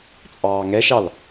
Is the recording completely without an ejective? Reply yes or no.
no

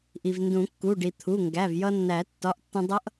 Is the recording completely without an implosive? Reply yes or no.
yes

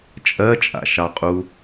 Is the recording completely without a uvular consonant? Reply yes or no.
no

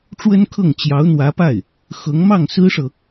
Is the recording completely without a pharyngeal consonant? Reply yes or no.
yes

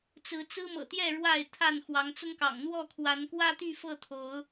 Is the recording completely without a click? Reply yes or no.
yes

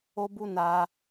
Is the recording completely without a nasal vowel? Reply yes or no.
yes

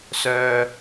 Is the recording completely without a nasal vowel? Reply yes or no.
yes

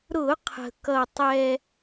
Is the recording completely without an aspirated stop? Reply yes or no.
no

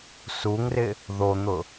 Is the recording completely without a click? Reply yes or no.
yes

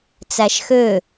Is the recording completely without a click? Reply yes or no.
yes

